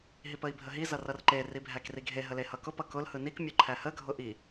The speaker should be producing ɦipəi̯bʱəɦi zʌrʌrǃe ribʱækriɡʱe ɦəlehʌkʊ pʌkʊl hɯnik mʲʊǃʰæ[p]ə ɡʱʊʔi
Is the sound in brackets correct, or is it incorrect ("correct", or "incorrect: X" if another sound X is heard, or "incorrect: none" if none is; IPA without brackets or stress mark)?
incorrect: h